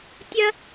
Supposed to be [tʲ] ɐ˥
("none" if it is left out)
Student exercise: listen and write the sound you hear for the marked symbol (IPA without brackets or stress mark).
tʲ